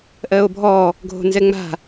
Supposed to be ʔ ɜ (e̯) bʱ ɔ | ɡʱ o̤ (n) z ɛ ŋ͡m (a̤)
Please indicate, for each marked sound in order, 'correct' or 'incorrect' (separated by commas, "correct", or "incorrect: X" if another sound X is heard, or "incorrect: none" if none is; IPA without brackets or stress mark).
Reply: incorrect: o̯, correct, correct